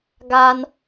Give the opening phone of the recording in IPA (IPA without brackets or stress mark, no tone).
ɡ